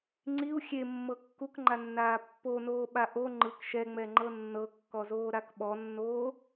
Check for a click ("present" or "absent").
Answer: present